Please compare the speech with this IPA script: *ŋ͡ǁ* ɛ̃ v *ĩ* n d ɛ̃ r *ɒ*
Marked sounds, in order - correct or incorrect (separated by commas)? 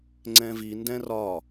incorrect, incorrect, correct